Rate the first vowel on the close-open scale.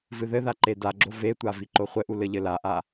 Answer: close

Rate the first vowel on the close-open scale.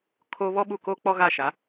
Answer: mid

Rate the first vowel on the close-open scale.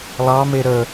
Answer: open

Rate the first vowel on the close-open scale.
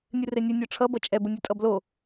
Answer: close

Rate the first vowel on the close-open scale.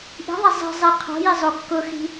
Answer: close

